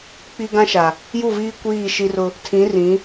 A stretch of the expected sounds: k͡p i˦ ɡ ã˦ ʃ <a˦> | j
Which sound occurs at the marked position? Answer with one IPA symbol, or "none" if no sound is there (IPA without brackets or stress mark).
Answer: a˨